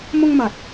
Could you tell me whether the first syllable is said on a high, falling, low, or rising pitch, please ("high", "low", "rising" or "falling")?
high